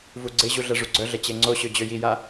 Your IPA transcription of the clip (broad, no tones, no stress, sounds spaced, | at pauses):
v u ɡ͡ǀ e ʑ u ɮ ɛ ʐ u ɡ͡ǀ œ ɮ ɛ t͡ɕ e ŋ͡ǀ o ɕ ø d͡ʑ ø j i j a